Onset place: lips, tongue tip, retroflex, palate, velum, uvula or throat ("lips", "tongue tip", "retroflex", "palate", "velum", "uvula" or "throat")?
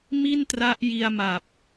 lips